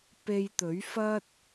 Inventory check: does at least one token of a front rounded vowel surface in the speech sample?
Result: no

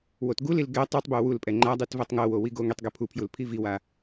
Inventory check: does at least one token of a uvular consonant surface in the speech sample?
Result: no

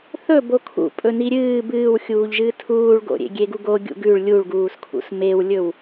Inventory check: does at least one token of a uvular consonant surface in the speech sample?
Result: no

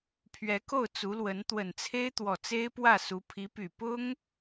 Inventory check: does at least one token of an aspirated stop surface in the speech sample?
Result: yes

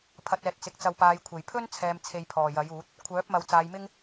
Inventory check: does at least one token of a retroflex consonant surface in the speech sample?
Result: no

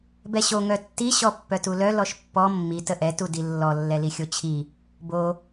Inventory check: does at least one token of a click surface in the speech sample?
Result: no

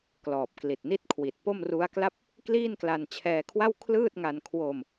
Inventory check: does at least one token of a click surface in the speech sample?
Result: no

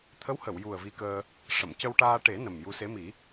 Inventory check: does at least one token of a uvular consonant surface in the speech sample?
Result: no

